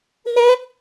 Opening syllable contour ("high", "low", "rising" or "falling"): high